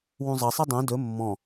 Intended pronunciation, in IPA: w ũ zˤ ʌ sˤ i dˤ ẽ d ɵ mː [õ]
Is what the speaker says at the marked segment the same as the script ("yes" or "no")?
no